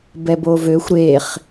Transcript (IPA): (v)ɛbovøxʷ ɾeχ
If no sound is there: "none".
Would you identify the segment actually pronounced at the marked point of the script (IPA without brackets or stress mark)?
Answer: b